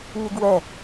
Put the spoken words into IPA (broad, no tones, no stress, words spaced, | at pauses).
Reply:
ɲeɡwɛ